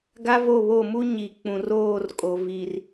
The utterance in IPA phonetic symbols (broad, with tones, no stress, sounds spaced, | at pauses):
ɡ a˦ v o˦˨ β o˦˨ m u˦ ɲ i˨ k͡p ũ˨ r oː˦˨ r kʼ o˨ v i˨ r